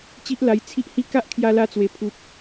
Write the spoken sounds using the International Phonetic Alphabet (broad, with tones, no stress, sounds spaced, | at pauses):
t͡ɕ i˦ ʔ l a˧ j t͡sʰ i˦ ʔ h i˦ k a˦ ʔ kʰ j a˧ l a˧ t͡s w e˨˩ pʰ u˨ p̚